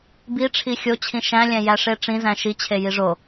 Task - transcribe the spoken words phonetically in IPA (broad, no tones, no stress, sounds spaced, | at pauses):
b i ʈ͡ʂʰ i xʲ o t͡ɕʰ ĩ ʃ æ̃ lʲ æ̃ j æ ʂ e ʈ͡ʂ ĩ z æ̃ ʃ i t͡ɕʰ e j i ʐ o